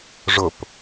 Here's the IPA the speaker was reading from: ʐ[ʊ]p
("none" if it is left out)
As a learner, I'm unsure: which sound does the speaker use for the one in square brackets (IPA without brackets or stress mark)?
ʊ